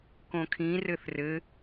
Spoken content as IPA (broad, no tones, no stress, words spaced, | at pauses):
kõkʰĩ rɘθrɘ